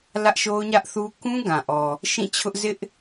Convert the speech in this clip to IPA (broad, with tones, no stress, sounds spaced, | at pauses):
l ä˦ ʔ ʃ o˦ ʊ̯ ɲ ä˦ ʔ θ u˦ k ũ˦ ɡ ã˨ ʔ ɔ˨ | ʃ ĩ˦˨ t͡ɕʰ ʊ˦ ʔ z ɪ˦ ʔ